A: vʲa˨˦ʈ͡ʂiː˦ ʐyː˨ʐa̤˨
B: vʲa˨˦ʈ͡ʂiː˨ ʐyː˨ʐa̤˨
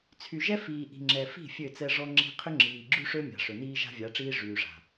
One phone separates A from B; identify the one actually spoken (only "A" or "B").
A